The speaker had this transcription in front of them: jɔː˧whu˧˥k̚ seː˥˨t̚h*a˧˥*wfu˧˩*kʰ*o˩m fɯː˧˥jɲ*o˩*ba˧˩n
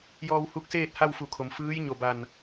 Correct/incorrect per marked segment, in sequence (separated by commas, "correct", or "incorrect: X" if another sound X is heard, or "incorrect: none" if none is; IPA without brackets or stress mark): incorrect: a˥˨, correct, incorrect: o˧˩